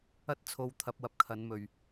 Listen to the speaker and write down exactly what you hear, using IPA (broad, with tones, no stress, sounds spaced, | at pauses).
ɐ˥ t̚ t͡sʰ o˧ w t̪ʰ ɐ˧ p̚ w ɐ˨ p̚ kʰ ɐ˨˧ n m ɵ˨ ɥ